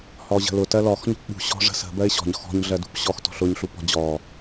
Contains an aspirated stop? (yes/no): no